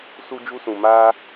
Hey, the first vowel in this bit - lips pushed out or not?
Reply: yes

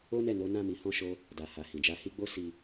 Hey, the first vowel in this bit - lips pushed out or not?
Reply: yes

